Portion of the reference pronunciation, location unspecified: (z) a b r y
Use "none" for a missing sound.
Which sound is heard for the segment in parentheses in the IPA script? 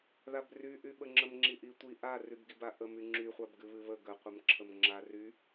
ð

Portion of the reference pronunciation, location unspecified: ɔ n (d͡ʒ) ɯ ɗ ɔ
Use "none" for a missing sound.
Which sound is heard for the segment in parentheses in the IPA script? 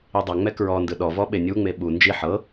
d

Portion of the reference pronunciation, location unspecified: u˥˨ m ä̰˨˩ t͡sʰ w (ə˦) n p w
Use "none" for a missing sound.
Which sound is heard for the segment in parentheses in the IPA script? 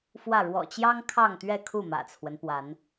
ə˦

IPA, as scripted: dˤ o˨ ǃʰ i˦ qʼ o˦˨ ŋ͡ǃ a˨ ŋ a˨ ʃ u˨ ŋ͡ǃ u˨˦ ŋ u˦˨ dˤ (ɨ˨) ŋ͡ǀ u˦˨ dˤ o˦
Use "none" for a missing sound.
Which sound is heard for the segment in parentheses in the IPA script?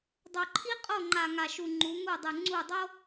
ɨ˨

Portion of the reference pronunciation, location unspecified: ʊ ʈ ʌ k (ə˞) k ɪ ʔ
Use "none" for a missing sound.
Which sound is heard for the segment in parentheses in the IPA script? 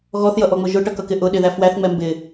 ʌ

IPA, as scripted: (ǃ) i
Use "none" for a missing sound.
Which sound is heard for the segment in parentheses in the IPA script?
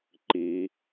ǃ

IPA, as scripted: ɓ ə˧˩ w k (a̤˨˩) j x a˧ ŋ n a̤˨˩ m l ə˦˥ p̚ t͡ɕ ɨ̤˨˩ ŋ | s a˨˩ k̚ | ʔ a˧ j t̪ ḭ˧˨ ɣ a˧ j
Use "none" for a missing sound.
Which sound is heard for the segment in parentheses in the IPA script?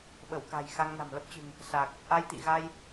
a̤˨˩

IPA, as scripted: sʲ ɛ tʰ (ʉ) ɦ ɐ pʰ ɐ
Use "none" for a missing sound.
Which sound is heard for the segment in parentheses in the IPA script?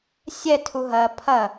u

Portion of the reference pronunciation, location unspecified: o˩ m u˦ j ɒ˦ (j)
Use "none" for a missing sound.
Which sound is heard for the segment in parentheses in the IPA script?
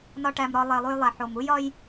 j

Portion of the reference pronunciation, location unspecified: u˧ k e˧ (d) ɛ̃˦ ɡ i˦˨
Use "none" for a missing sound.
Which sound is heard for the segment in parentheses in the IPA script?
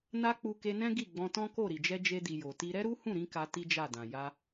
n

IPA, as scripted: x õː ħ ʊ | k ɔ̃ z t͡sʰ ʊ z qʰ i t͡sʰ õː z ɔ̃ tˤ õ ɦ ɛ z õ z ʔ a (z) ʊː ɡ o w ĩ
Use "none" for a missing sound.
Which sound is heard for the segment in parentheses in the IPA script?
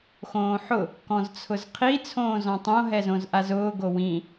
z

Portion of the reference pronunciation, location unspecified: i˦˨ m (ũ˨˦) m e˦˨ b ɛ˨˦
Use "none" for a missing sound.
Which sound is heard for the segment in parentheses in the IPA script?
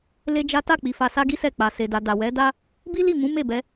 ũ˨˦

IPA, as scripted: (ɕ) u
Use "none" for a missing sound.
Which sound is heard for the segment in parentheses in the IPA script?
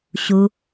ɕ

